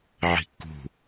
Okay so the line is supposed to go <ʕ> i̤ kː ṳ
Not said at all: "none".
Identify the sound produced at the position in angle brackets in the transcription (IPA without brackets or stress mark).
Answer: ʕ